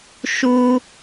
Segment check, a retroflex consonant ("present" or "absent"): absent